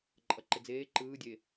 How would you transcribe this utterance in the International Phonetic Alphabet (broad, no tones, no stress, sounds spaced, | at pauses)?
ǃʼ ʌ ǃ ɪ d͡z eː ǃ ɯː dʲ e